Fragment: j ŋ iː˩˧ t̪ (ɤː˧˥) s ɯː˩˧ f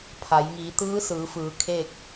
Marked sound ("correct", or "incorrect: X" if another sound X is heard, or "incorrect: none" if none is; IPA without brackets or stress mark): incorrect: ɯː˧˥